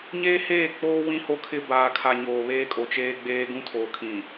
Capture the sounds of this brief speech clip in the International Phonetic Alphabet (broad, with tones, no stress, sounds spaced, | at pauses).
ɲ eː˦ h eː˦˨ k͡p oː˦ w ĩ˦ h o˦ kʰ ɪ˦ b aː˨ kʰ a˨ ɲ oː˨ β eː˦ kʼ o˨ t͡ʃ eː˦ ɡ͡b eː˦ ɡ ũ˦ tʰ oː˨ kʰ ĩ˨